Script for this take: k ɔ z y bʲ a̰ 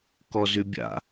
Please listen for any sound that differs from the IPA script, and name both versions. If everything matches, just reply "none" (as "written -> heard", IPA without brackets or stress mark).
none